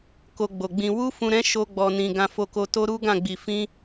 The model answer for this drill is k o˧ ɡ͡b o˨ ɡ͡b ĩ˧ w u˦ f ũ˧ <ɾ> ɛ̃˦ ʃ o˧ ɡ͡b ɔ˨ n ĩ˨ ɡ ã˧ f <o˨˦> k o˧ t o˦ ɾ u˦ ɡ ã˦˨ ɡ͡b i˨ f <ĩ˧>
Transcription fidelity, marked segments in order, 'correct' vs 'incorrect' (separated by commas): correct, incorrect, correct